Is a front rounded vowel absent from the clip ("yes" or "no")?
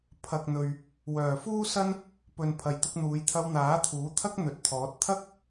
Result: no